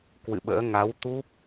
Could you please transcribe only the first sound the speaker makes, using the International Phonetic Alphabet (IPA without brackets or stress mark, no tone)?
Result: k